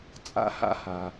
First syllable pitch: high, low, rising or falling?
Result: high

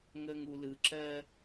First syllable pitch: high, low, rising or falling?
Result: low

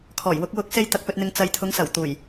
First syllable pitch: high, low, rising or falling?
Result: low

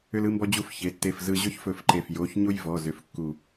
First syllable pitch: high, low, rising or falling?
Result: high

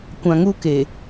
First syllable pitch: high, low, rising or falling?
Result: low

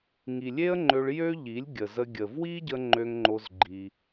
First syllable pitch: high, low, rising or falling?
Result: low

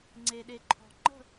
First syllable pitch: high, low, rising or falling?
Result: low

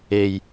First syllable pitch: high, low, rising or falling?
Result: low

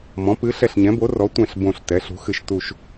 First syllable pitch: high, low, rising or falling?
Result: rising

